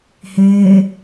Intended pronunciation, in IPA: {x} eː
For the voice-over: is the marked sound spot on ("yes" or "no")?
no